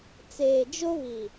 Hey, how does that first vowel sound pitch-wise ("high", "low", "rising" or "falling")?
low